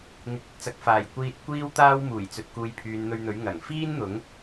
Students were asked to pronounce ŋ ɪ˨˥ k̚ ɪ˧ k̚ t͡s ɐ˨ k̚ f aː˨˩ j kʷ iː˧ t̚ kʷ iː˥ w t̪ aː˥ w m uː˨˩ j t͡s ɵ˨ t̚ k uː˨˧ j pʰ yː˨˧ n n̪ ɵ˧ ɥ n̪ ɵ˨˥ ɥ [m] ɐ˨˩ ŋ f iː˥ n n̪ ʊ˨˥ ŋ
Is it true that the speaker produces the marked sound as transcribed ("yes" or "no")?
no